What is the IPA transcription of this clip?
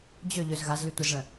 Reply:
d͡ʑ ø ʎ ø z ɣ a z l y tʷ ə z ɭ ə̃

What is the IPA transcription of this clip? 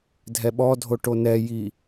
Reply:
dʱ ɛ ɓ ɔ dʱ o ʈ o n ɛ j i

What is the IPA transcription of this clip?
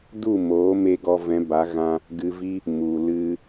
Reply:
d u˦˨ m oː˨˦ m e˧ ɡ ɔ˧ v ɛ̃˨˦ b a˨˦ ɣ ã˧ | ɡ ɨ˧ v i˦ | m u˨ l ɨ˦

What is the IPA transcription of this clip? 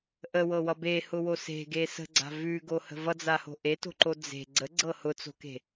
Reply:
ʔ ə w ɤ w ʌ b e h ʊ w o s e̤ ɡ e s ə̤ ɡ͡ǀ a̤ v ʉ ɡ o h ə̤ v ʌ d͡z a h o̤ ʔ e t o̤ ǃ o d͡z e̤ ɡ͡ǀ ə ɡ͡ǀ ɤ h ʊ t͡s o̤ k e̤

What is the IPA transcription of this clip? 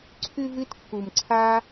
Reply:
ǀʰ ʉ˥ v ɨ˦ t kː u˨ m ǀʰ aː˦

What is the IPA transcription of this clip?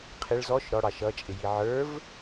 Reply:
qʰ ɪ ɭ z ɔ ʃ ɾ ɔ ɽ ɑ ʃ ʌ t͡ʃʼ ɪ j i ʕ ə˞ v

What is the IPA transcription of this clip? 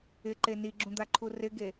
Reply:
ɪ ǃ e n i ɡ͡ǁ ũ d̪ a ǃʰ u r ɪ ɡ e

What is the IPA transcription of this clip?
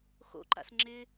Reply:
x o̰ ǃ a̰ s ŋ͡ǁ ɪ

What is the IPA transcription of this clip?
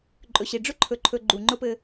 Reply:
ǃʼ ɵ˨ ɕ i˨ ɖ͡ʐ ʊ˦ ǃʰ ɵ˨ ǃʰ ɵ˨ ɡ͡ǃ u˨ ŋ͡ǃ ʊ˦ p ɘ˦

